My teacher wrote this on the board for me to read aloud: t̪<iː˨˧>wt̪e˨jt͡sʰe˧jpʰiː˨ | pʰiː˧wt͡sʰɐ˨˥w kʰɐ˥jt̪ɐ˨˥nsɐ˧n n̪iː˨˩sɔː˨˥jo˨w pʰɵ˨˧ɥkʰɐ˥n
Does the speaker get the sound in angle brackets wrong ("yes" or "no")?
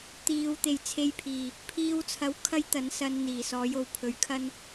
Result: no